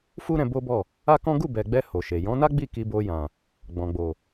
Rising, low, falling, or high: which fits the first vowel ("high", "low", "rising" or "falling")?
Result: high